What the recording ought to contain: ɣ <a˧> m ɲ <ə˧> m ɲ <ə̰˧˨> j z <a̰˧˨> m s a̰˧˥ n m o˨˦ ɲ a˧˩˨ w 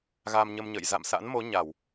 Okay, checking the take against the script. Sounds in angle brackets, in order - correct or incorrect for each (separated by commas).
correct, correct, correct, correct